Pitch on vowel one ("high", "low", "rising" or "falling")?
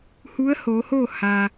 rising